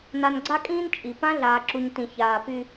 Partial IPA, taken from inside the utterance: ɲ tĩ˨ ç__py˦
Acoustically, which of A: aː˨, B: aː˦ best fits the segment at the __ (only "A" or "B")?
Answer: A